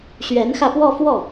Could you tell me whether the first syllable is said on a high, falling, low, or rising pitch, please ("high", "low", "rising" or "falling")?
rising